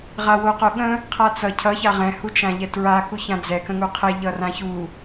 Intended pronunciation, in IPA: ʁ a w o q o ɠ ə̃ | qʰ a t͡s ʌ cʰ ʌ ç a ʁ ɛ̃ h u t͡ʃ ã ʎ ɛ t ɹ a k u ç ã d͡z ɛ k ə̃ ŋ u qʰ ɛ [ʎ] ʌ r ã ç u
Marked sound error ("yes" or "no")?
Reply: no